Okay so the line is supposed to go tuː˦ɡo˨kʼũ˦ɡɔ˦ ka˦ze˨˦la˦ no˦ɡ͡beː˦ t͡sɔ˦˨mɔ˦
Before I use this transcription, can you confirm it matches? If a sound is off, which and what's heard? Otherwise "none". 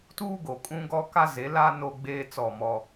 none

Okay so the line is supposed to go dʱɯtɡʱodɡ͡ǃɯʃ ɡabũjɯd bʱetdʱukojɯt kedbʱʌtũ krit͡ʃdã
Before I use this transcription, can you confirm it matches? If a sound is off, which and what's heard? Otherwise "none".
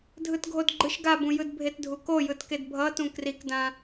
t͡ʃ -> k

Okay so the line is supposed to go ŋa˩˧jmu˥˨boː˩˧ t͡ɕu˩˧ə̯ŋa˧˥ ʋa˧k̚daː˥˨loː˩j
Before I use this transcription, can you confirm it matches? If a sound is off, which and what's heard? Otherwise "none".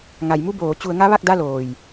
aː˥˨ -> a˥˨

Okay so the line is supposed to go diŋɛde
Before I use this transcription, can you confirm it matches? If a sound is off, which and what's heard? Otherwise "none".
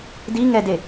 none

